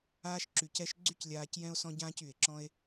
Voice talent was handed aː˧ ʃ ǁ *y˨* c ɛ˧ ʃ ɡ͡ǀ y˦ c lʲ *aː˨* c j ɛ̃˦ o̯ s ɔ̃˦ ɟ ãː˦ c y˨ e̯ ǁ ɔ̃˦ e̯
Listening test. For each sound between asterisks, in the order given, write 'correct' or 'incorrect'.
correct, incorrect

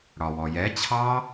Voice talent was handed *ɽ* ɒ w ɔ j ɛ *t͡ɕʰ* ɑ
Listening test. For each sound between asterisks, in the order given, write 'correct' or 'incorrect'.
correct, correct

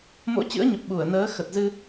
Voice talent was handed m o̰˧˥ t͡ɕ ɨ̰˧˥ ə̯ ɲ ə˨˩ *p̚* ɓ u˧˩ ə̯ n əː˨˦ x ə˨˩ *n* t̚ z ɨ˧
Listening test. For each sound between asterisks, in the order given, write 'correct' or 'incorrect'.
correct, incorrect

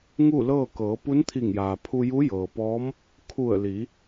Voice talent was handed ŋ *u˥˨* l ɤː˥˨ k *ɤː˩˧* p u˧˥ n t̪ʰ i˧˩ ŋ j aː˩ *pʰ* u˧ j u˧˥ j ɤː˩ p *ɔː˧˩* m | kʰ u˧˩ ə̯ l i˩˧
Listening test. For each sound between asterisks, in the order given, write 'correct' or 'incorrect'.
correct, correct, correct, incorrect

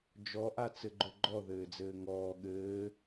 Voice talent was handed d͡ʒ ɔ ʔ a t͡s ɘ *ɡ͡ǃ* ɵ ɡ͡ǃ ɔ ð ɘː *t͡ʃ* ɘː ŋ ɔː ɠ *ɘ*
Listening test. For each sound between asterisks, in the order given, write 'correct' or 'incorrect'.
correct, incorrect, incorrect

